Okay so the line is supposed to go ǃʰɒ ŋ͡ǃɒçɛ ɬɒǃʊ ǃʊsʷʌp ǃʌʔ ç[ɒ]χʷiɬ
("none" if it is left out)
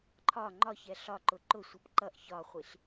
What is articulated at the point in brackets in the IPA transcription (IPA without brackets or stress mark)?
ɒ